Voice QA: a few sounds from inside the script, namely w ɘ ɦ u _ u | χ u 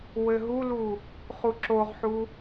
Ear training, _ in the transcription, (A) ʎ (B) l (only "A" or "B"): B